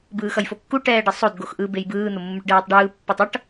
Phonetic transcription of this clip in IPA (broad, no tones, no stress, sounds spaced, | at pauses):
b ɯː x ʌ j f o kː u ʈ ɛː ɖ ʌ sˤ o d ɡ o x ʔ ɯ b e j b ɯː n̪ o mː u ʈ ɖ ɛː tˤ ɖ ɯː pː o tˤ ʌ ʈ